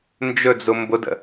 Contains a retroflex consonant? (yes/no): no